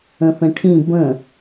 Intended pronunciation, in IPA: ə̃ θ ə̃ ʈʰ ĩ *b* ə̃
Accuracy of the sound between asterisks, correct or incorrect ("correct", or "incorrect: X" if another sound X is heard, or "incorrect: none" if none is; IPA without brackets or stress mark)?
correct